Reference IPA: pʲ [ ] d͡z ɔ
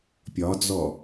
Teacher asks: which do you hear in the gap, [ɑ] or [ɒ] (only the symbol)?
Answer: ɒ